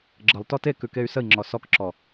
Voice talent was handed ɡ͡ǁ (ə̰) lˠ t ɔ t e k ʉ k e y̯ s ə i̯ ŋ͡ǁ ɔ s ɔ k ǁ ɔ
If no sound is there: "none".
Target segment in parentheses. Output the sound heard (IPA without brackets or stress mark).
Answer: ə